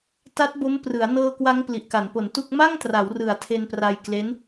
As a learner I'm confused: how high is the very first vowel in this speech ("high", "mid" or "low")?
low